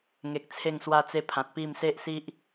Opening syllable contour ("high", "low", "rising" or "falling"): low